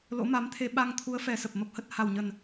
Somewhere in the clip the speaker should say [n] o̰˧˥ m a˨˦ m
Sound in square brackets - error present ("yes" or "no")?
yes